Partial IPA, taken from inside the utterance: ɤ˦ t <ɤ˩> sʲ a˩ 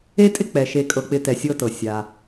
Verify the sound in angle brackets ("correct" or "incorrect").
correct